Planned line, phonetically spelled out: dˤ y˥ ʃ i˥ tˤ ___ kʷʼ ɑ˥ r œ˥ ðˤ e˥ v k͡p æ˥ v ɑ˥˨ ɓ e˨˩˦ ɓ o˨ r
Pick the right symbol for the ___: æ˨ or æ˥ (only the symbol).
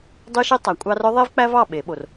æ˨